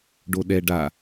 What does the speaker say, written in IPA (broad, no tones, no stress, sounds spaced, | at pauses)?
ɖ o ɗ ɛ ɖ a